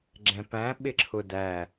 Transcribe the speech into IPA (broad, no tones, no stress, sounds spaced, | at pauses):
ɡ͡ǁ ɛ̃ p æ̃ ɓ ɪ ǁʰ ʊ d æ